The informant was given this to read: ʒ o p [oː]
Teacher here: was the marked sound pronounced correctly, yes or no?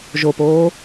yes